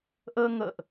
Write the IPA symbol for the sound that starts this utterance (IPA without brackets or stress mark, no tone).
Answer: ʔ